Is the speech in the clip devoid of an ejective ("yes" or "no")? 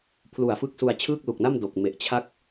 yes